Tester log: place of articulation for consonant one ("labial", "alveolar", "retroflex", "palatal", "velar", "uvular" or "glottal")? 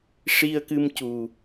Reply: retroflex